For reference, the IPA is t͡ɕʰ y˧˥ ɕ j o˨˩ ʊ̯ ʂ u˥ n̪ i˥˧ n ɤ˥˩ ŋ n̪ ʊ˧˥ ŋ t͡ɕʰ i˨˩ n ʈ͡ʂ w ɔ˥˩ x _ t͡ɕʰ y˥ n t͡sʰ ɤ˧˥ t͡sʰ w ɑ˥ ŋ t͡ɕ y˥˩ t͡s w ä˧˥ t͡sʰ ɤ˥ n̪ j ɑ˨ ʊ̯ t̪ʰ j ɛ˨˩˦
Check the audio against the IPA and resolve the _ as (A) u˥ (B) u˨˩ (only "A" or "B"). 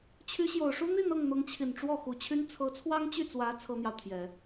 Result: B